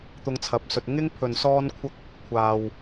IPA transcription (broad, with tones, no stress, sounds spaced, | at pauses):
t̪ ʊ˧ ŋ t͡sʰ ɐ˨˥ p̚ s ɵ˨ t̚ ŋ ɪ˥ ŋ pʰ ɵ˨ n s ɔː˥ n kʷʰ ɐ˥ k̚ | kʷʰ aː˨ w